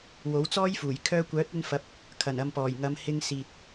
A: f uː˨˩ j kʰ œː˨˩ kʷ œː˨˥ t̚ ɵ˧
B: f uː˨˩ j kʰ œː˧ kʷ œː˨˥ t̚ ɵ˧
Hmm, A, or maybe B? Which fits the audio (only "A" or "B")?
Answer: B